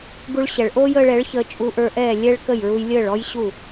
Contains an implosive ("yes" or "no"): no